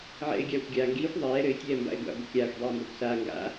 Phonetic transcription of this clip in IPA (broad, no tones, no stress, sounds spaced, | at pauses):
ʕ ɛ̰ ɪ̯ ɡʲ aː xʷ ɡʲ aː ŋ ɡ iː xʷ ðˤ ɛː ɾ ɘ ɪ̯ tʲ ɛː m b a̰ ɪ̯ ɡʷ a̰ ɡʷ ɘ kʲ aː xʷ dˤ iː m b a kʷ s aː ŋ ɡ a̰